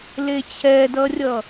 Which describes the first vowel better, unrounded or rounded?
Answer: unrounded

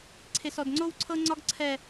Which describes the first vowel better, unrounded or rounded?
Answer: unrounded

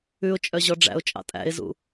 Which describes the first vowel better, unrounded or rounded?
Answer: rounded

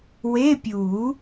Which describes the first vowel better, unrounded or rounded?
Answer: unrounded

